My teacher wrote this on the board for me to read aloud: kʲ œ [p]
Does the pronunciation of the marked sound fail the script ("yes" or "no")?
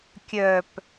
no